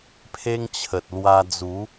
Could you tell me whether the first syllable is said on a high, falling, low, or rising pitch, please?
high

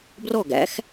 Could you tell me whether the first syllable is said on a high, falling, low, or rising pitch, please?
falling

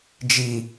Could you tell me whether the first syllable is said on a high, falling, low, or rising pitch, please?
low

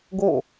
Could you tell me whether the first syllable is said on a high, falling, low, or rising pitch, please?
falling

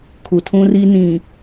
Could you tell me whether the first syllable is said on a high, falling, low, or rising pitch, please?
low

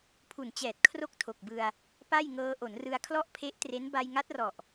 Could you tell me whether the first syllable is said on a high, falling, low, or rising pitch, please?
low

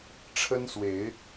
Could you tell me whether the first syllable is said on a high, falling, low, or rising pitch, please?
high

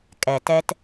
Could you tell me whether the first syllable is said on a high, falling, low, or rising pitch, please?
low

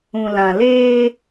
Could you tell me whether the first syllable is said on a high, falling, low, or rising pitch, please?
low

